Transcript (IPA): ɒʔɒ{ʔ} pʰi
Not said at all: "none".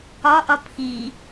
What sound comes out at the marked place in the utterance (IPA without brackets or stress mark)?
none